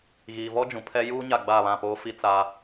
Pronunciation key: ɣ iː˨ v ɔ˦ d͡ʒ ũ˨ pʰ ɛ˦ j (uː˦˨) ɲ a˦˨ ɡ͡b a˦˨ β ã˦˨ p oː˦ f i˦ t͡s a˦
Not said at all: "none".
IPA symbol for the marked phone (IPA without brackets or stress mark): uː˦